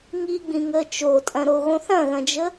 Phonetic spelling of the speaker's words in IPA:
ŋiɡ͡bĩŋəː t͡ʃotʼɐ̃ɾoɣõ θɐ̃ɣɐ̃d͡ʒə

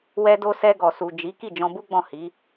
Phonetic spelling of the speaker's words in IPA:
wɛ˧do˧ sɛ˧ɡɔ˨ su˨d͡ʒi˨˦ ki˦˨d͡ʒɔ̃˧bu˦ɡ͡bɔ̃˦˨ hi˨˦

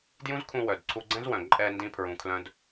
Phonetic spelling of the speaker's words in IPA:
djũ˦zkʰũ˧wœ˨dǀʰu˧ ɡ͡ǀɛ̃˦zwœ̃˨ ǃʼɛ˧ndĩ˧ pʰɹũ˧kʰlœ̃˦d

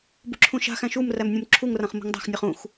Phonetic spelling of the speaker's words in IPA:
bṳǁʰũʃa̤xæ̃ ʃum ræmnʲũmǁʰuŋrãχ mṳŋdˤa̤xnʲɔχ ũx

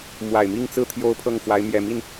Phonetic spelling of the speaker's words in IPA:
mwa˨˩ɪ̯mi˥˧ŋt͡sɹ̩˥˩ t̪ʰjo˥ʊ̯pʰɤ˥˩ŋfwa˧˥ɪ̯ mjɛ˨˩mi˥˩n

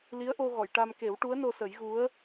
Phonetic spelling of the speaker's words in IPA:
li˧˥ə̯ʔo˧ ɣɔ˨˩˨jʈa˧mke˨˩˦w ʈu˧˥ə̯no˧sə˨˩˦jɣu˧˥ə̯

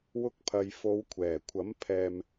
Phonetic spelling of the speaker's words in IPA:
wʊ˧k̚pʰɐ˨j fo˨˧w kʷʰɛː˨˩kʷʰɐ˨˥m pʰɛː˨m

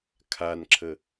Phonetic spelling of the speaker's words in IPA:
kʰanǁʰə

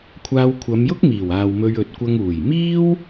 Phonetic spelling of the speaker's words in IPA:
kʷʰaː˧wkʷʰɐ˨˧mjʊ˥k̚miː˨˩w aː˨wmɵ˧ɥ ɵ˨˥t̚kʷɐ˧ŋ uː˨˩jmiː˥w

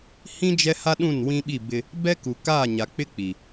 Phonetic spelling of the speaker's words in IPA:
hĩ˦ d͡ʒɛ˦ha˦ɗũ˦˨n wĩ˦ɓi˦˨ bɪ˦ | bɛ˦ku˨kaː˦˨ ɲa˨k͡pɪ˦ k͡pi˨

